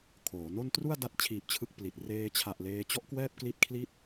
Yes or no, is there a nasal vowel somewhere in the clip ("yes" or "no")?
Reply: no